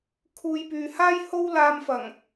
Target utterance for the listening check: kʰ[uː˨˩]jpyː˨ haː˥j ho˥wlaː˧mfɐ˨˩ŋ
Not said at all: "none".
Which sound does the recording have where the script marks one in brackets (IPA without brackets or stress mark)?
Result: uː˨˧